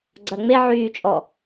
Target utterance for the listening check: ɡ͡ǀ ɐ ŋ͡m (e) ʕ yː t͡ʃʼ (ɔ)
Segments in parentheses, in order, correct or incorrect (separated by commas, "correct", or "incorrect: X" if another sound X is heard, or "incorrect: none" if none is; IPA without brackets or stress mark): correct, correct